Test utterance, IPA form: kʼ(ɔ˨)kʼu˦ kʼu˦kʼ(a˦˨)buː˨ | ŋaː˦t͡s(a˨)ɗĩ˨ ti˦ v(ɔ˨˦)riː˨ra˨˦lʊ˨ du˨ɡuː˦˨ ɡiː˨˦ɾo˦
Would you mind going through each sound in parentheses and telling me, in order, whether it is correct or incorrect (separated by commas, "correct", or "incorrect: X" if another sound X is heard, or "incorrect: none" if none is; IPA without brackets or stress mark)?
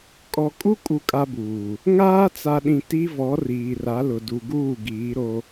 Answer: correct, incorrect: a˦, correct, correct